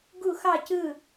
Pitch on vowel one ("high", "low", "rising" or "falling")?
falling